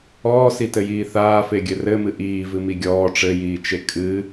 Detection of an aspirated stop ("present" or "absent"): absent